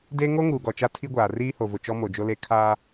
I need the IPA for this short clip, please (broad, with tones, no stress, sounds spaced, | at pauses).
d e˦ ŋ o˦ ŋ uː˨ ɡ ɔ˨ t͡ʃ a˦ tʰ i˦ ɡʷ aː˨ r iː˦ h o˨ v ʊ˨ t͡ʃ ɔ˦ m o˨ d͡ʒ o˦ l e˦ kʰ aː˦